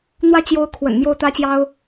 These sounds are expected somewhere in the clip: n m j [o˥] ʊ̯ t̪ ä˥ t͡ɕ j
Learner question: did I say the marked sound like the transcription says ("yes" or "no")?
no